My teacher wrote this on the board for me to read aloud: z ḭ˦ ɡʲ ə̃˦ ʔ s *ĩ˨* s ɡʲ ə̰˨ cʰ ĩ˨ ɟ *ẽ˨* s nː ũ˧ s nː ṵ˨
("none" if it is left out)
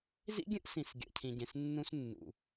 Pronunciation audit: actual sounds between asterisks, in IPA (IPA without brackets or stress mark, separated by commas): ĩ˨, ẽ˨